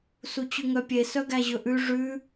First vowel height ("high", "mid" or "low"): high